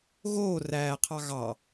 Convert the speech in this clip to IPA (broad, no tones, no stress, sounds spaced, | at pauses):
ɣ oː r æː qʰ ɑ ɣ ɑ